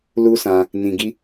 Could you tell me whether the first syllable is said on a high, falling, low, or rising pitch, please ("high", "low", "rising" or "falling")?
high